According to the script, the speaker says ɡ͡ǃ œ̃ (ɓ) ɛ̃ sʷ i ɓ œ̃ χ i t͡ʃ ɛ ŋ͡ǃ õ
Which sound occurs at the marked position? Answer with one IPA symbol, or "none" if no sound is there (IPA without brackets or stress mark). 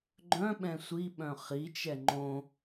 ɓ